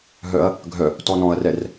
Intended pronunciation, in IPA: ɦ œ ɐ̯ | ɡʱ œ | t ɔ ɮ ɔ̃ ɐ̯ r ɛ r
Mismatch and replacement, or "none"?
ɮ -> n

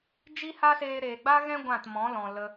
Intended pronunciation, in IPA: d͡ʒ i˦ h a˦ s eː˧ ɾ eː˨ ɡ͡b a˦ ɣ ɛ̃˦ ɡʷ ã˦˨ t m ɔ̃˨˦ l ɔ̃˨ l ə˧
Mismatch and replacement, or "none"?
none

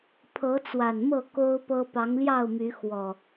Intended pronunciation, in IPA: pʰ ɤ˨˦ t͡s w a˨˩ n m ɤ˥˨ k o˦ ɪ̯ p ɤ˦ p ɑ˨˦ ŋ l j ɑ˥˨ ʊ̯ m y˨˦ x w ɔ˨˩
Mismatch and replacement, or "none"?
ɪ̯ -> ʊ̯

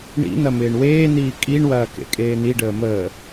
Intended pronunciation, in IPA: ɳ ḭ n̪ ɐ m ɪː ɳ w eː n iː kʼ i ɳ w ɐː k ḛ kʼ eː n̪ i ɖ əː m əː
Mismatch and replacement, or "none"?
none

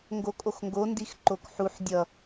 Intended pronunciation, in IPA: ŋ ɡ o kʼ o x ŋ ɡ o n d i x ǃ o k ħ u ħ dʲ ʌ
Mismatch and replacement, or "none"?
none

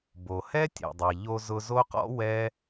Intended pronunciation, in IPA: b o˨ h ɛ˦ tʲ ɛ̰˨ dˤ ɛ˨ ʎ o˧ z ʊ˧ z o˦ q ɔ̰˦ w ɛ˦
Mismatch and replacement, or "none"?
none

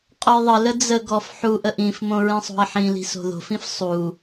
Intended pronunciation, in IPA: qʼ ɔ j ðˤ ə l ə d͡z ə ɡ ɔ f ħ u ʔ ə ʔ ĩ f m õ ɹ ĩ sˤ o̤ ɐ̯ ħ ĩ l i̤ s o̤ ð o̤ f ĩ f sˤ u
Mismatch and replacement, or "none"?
none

